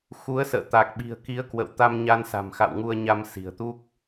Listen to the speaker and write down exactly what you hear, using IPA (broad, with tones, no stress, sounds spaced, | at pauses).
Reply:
x u˨˦ ə̯ s ə̰ː˧˨ t̪ a˨˩ k̚ ɓ i̤˨˩ ə̯ k i˨˦ ə̯ k w ə̰˧˨ w t̪ a˧ m ɲ a˧ n s a̤˨˩ m x a̰˧˨ w ŋ u˧ ə̯ ɲ a˧ m s i̤˨˩ ə̯ t̪ u˦˥ k̚